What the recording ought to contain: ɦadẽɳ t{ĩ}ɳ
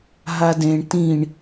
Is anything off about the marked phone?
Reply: no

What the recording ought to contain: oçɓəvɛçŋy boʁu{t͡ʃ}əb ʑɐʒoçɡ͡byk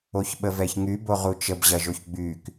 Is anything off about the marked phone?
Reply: no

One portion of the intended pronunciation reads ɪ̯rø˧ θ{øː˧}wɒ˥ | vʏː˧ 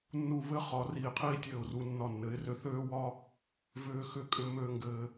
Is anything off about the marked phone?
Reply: yes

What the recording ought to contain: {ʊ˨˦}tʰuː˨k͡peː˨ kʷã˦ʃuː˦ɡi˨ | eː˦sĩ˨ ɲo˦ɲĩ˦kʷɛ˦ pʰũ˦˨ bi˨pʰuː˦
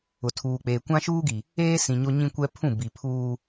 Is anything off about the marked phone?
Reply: yes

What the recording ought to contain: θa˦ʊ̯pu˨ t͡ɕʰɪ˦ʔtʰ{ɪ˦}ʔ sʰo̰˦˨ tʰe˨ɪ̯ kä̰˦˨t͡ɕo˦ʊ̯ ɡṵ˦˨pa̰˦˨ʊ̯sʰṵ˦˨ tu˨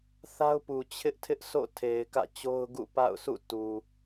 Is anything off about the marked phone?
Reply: no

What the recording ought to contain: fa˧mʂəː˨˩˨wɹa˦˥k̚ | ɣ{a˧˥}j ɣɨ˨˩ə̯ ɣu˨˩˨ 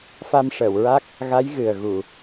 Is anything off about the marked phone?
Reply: no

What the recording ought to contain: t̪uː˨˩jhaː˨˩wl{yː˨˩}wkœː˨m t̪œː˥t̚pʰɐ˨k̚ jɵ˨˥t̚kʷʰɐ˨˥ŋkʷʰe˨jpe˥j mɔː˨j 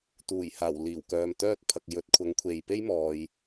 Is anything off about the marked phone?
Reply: yes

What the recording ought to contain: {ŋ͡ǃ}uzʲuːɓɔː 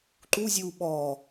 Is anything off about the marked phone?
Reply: yes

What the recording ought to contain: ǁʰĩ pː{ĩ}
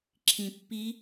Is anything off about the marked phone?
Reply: yes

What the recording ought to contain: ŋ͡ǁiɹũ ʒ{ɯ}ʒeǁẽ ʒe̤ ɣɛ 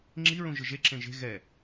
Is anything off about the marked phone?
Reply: no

